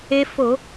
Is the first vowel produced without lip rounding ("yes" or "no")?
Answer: yes